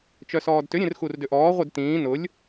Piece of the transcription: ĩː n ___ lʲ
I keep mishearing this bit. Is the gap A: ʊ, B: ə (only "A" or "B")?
A